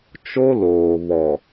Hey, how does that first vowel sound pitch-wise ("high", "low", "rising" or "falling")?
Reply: high